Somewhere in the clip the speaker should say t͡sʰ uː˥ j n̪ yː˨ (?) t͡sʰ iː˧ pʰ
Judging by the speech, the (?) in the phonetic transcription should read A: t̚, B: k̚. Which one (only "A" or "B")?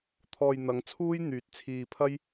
A